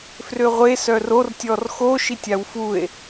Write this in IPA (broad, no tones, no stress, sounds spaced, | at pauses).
f r ø ʁʷ e s œ r o r tʲ ɔ r x o ʃ i tʲ a w f u e̯